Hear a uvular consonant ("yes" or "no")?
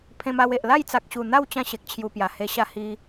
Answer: no